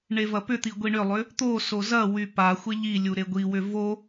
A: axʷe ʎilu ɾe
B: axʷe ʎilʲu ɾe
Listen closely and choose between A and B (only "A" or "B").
B